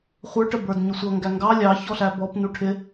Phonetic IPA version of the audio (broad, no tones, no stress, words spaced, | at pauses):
χʷə˞ʈə bə˞dɲʊsʷʌ ŋɡæŋɡɑ lʲɑçɔɬæ bɔp nuʈʰɪ